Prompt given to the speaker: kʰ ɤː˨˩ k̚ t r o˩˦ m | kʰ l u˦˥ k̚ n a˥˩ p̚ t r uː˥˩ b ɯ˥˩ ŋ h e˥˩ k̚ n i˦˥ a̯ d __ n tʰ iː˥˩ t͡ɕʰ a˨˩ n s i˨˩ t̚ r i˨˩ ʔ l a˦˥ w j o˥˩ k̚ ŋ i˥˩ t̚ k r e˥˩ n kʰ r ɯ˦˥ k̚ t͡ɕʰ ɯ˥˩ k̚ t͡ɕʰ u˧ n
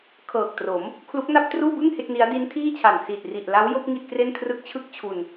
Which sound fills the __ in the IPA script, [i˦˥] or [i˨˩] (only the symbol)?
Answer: i˦˥